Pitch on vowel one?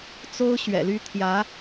high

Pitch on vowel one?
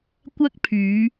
high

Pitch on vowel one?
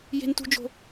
high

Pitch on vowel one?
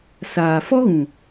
low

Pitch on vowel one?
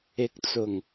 rising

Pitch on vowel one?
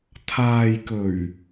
low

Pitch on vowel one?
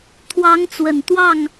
rising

